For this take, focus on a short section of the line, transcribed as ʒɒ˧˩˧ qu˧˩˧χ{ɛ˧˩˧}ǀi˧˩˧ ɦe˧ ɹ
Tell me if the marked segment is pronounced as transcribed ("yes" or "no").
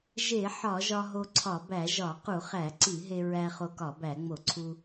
no